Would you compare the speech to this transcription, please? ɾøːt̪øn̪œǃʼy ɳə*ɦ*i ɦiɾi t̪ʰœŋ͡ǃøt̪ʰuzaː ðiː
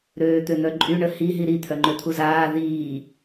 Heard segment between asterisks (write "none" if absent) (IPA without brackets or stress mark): h